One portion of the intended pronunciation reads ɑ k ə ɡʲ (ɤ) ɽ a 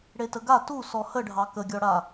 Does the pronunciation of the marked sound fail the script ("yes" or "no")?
yes